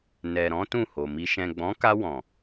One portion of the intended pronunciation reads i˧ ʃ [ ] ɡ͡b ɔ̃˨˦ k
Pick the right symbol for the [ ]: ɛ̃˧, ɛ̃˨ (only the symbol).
ɛ̃˨